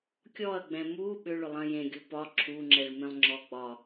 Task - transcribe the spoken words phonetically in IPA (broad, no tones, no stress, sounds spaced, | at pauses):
kʲ ɔ ɐ̯ ɡ͡b ɛ̃ m u ɓ ʏ ɭ ʏ lˠ ɐ̃ j ẽ ɡʲ u p ɒ ǁʰ u ŋ͡ǁ ɛ ɭ m ẽ lˠ ŋ͡ǁ ɔ ɡ͡b ɒ